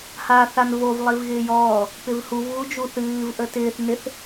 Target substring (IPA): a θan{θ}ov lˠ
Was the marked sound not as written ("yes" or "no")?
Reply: yes